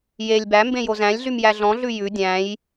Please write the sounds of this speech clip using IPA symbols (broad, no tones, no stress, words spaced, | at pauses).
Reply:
jelʲ bæmbẽ jozæ̃lʲɮym jæɮɔ̃ɮʉ jʉ dʲæ̃j